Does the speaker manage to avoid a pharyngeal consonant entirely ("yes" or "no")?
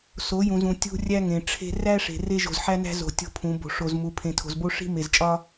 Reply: no